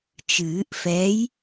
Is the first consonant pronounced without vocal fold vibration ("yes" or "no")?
yes